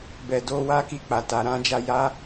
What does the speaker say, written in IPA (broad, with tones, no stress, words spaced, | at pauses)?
bɛ˨do˧ wa˦ki˧k͡pa˨ ta˨ɾã˧d͡ʒa˧ ja˦